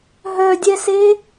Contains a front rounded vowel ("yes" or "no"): yes